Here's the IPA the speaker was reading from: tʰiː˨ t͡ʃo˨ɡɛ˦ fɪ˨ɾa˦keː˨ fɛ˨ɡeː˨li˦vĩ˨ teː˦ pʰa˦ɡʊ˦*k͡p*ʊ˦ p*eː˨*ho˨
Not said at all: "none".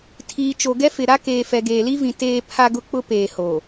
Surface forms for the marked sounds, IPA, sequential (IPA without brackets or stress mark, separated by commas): k͡p, eː˨